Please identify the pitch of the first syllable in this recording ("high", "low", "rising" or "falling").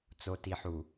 low